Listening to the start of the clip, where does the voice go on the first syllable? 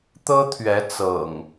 high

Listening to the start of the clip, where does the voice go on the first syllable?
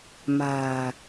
low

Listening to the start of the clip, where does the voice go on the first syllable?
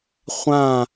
falling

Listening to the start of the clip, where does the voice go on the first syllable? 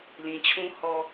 low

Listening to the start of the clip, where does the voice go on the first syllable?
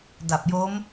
low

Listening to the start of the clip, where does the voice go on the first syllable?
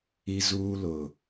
high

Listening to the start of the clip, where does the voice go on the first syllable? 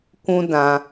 high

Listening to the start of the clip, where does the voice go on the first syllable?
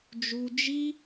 low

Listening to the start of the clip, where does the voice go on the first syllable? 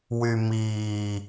low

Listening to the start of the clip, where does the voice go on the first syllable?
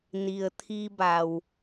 low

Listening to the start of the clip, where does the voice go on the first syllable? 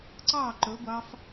falling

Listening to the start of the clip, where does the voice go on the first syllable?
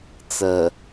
low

